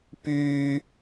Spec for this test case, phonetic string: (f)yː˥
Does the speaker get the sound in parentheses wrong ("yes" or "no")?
yes